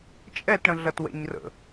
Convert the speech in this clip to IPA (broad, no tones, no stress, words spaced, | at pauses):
t͡ʃʼɛt ɽə̃ɮɐtwɛ̰ɲrə̰